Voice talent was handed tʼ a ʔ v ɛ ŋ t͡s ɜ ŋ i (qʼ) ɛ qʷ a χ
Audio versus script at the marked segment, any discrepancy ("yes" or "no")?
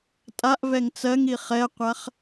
yes